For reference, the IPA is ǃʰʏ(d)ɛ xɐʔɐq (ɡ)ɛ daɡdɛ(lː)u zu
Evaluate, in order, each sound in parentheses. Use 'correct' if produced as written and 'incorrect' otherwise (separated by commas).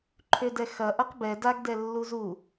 correct, incorrect, correct